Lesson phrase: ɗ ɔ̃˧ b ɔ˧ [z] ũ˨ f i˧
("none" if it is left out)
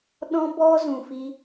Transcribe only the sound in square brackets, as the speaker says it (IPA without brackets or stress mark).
z